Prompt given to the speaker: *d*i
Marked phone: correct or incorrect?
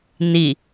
incorrect